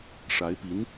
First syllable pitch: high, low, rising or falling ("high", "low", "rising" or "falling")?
rising